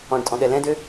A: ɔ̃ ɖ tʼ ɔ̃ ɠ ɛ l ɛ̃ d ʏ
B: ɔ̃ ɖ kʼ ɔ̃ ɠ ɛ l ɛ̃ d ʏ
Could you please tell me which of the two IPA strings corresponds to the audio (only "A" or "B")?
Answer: A